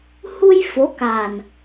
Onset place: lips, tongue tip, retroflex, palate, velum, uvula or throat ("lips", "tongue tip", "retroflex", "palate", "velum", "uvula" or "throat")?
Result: throat